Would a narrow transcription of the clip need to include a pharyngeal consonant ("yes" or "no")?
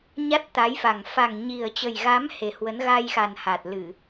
no